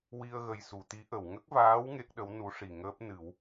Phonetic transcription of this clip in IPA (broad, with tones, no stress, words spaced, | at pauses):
wi˧ə̯ɣə˨˩j su˨˩˨t̪i˧˥ʔə˨˩˨w ŋə˦˥k̚vaː˧˥w ŋe˦˥k̚ɗə˧˥w nu˧˥ ʂi˨˩ŋəː˦˥p̚nɨ˨˩˦w